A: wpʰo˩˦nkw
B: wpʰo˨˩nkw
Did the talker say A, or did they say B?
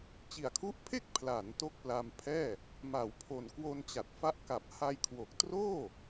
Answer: B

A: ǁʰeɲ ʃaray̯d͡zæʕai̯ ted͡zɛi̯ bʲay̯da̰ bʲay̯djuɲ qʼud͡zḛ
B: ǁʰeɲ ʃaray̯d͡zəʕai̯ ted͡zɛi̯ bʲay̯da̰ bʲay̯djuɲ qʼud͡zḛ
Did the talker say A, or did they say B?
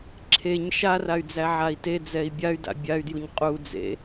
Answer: A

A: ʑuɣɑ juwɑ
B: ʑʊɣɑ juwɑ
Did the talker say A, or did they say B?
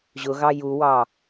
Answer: B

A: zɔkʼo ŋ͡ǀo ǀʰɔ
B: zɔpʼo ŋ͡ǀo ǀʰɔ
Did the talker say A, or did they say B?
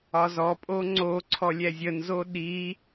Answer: B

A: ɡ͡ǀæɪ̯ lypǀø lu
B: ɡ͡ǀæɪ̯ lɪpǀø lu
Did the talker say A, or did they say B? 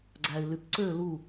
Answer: A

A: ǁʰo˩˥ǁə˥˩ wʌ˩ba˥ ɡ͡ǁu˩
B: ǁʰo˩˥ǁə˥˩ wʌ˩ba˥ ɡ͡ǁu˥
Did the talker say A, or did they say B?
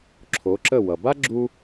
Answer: B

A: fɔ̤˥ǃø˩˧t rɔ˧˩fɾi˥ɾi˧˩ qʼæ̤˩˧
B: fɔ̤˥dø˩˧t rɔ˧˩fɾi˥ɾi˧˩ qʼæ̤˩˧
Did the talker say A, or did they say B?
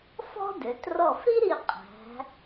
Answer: B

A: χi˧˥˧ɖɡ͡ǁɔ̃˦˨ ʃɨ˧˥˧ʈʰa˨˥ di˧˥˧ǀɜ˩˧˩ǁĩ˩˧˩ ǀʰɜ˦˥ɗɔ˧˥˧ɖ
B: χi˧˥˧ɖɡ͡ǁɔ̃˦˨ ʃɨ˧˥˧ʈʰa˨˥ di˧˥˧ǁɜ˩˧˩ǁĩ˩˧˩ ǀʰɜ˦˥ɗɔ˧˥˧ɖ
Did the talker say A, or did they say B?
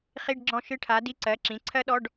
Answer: A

